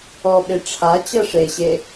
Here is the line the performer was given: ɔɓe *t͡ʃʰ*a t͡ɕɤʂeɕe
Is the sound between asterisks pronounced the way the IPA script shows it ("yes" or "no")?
no